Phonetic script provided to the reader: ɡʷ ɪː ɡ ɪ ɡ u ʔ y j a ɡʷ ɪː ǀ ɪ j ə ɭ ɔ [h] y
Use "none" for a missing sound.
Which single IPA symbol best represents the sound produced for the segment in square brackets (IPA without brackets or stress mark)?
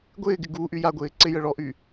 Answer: ʔ